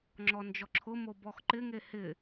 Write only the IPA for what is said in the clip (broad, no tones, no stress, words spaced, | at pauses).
ŋ͡ǁɔnd͡ʒɔǁʰʊmo bɔxǃɪŋe hɪ